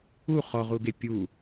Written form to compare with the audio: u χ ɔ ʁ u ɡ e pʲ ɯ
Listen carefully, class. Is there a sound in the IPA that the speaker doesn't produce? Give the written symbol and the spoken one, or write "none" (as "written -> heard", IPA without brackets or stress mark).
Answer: ɯ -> u